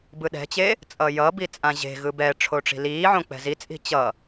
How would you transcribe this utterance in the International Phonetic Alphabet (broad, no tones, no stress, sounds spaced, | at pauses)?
b ɯ ɗ ɛ̤ t͡ɕ e | t͡sʼ ʌ j ʌ b i t͡sʼ ã ʑ e̤ ɣ ɯ b ɛ ʈ͡ʂʰ o ʈ͡ʂ i̤ l iː ʕ õ k͡p ɛ̤ z i t͡sʼ i̤ t͡ɕ ʌ